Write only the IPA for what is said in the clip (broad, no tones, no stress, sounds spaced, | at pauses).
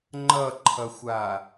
ŋ͡ǃ ʌ ǃʰ ʌ xʷ a